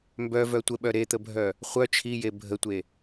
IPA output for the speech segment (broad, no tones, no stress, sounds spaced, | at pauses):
m b œ v œ tʷ ə ɓ œ ɾ e t̪ ə bʱ œ | χʷ œ t͡ʃʰ i j e bʱ ə tʷ e